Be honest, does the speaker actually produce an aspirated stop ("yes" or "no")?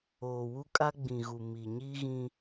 no